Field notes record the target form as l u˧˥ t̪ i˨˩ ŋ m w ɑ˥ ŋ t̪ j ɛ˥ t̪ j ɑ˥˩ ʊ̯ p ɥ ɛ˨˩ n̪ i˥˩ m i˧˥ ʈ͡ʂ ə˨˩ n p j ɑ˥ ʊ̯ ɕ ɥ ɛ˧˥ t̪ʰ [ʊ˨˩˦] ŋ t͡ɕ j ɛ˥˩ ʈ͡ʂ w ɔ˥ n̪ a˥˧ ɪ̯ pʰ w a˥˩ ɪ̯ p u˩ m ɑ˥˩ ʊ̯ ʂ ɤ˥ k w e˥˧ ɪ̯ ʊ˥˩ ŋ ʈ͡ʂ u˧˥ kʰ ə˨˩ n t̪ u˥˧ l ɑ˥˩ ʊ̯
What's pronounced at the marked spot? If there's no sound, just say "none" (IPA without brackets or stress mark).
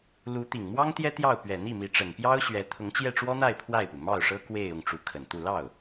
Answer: ʊ˧˥